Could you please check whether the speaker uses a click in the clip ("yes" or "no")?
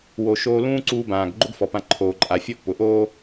yes